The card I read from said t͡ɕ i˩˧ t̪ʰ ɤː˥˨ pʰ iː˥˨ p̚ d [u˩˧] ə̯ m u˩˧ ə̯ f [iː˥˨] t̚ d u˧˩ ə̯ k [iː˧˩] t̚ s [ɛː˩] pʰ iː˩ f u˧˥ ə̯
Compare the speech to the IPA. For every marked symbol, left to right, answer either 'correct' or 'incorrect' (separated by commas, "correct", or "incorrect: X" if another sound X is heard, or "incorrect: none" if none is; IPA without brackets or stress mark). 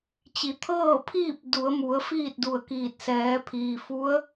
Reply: correct, correct, correct, incorrect: ɛː˩˧